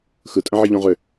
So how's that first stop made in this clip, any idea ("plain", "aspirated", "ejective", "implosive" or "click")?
ejective